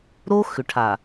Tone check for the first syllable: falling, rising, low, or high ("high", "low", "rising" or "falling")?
high